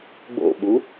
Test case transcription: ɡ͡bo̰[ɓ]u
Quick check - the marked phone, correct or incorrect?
correct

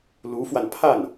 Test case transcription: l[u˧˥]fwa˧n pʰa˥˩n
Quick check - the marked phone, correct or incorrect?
correct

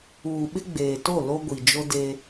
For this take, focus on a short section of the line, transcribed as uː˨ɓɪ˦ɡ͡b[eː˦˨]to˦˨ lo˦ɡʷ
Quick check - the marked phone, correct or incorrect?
incorrect: eː˨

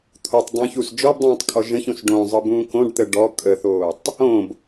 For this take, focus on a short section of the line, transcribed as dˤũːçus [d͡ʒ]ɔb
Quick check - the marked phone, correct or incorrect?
correct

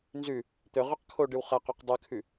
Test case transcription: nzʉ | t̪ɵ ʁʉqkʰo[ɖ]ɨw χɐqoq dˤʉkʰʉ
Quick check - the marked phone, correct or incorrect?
correct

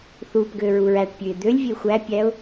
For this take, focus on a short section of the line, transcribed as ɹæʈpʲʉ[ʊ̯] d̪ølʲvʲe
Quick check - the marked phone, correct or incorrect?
incorrect: ɪ̯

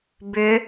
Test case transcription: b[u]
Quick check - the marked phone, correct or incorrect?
incorrect: ʏ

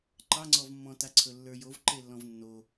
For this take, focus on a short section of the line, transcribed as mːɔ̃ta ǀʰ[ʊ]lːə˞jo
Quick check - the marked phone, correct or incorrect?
incorrect: ɵ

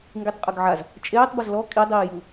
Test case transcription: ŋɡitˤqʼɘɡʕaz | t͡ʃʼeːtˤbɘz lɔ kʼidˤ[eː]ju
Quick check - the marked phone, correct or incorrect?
incorrect: iː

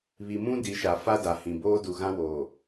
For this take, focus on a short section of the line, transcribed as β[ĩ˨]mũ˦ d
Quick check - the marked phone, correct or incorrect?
incorrect: i˨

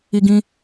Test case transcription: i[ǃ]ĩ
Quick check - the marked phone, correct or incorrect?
incorrect: ɡ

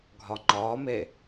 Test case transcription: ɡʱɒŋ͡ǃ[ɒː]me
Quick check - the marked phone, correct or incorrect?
correct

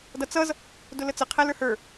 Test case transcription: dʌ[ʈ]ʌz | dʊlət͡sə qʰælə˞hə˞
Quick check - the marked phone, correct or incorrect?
incorrect: t͡s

